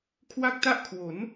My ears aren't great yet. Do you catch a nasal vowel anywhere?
no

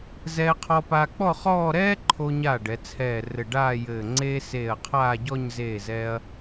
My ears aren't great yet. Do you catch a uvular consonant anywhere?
yes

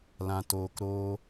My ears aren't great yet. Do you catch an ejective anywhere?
no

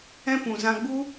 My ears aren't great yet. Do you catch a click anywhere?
no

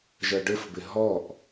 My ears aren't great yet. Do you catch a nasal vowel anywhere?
no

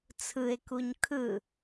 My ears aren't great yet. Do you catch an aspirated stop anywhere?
yes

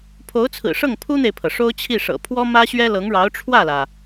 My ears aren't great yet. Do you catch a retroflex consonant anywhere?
yes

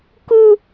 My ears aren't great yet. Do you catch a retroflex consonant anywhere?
no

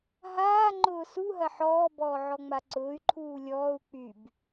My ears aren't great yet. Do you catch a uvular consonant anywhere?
no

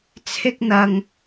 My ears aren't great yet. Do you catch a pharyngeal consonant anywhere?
no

